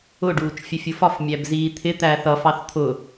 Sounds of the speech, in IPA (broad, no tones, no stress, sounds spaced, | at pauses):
ʊ ɖ uː t͡ʃ fʲ ə fʲ u f ɒ f mʲ æ b z iː t̪ʰ ɪ t̪ æ θ ʌ f ɑ θ t̪ʰ ʊ